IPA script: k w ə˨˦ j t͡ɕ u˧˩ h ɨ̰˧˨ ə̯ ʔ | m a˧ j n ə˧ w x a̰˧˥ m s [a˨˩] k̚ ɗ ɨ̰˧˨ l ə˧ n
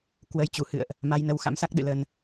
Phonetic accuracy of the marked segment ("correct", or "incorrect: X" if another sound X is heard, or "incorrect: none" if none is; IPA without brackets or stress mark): incorrect: a˦˥